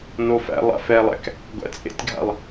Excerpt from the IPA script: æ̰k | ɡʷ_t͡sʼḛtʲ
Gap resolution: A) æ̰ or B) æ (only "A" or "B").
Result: A